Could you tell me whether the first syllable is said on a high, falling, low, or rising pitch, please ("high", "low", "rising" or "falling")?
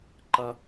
high